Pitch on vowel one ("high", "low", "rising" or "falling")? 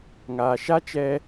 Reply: low